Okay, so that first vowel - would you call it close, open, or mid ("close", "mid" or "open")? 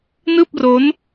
close